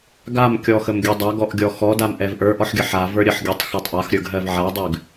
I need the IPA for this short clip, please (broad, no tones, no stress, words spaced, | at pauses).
ɡamkʲɔxəm ɡʲədˤaɡɔʔ ɡʲɔxɔdam ʔɛvʔə˞ʔɔħɡʲə ħa və˞ɾʲəħɡʲɜtˤ xɔtˤʔaxɾʲə˞ɡ ɦɜvʕadˤʉɡ